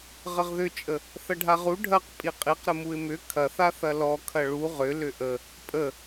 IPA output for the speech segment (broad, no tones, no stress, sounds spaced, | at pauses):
ʁ ə ʁ ð ʏ t͡ʃʼ ə | θ ɐ ɖʱ a ʁ u ɖʱ ɐ q pʼ i qʼ i q ɾ ə m u ɪ̯ m ʏ kʰ ɐ θ a θ ɐ l ɔ kʰ ɐ ɭ u ʁ ʏ l ʏ ʔ ə | pʼ ə